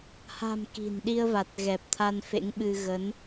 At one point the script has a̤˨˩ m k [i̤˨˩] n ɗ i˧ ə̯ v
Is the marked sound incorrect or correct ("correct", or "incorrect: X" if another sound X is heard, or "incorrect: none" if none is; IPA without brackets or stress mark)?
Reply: correct